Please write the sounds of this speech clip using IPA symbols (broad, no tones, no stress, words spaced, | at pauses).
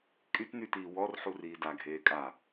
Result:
kʼytnytiː wɔr ħuriːda ɡʱeːkʼa